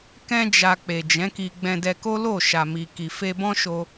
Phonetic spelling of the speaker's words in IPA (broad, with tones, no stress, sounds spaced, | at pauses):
k ɛ̃˦ d͡ʒ a˧ k͡p e˨ d͡ʒ ɛ̃˨˦ k i˧ ɡ͡b ɛ̃˧ d ɛ˧ k o˦ l o˦˨ ʃ a˨ m i˨ k i˨ f e˧ b ɔ̃˦ ʃ o˧